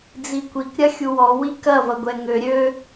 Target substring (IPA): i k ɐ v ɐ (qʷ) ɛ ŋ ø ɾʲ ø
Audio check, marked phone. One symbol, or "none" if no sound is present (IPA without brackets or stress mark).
ɡʷ